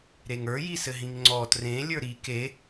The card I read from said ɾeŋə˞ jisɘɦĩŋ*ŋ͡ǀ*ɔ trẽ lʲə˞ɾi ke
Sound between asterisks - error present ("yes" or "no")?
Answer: no